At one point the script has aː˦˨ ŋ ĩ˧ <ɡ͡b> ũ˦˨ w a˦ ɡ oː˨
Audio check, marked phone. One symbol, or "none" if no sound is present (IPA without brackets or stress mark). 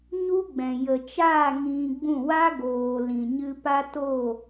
ɡ͡b